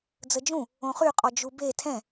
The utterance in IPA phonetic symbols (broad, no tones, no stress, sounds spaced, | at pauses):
d͡z ə d͡ʒ ũ | õ χ y qʼ ɔ d͡ʒ u b e tʰ ɛ̃